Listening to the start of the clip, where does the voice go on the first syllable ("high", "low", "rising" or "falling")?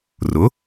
rising